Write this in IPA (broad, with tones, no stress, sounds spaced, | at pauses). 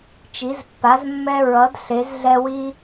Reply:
t͡ʃ i˨˦ z pː a˨˦ z mː ɛ˦ ɹ ʌ˨˦ d ɬ e˨˦ z ɮ ɛ˦ w i˦